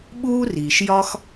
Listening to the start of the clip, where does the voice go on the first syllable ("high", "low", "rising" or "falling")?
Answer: high